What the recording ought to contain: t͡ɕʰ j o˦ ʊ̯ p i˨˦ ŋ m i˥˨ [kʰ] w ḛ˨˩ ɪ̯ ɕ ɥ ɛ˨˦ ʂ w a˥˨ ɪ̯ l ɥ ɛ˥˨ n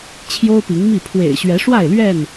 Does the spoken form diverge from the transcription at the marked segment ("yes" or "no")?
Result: yes